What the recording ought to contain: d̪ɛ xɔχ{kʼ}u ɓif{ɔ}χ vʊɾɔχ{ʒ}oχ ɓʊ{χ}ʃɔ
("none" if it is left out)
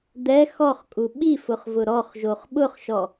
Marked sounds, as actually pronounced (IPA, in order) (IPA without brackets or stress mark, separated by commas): kʼ, ʊ, ʒ, χ